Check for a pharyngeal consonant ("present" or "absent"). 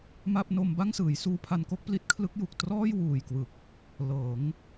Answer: absent